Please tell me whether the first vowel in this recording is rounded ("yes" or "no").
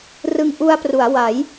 no